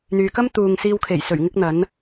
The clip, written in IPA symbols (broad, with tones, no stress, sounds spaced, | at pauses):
n̪ yː˨ k ɐ˥ m t̪ uː˨ ŋ s iː˧ w kʰ e˨˩ j s ɵ˨˩ ɥ ŋ ɪ˥ k̚ n̪ ɐ˨˥ n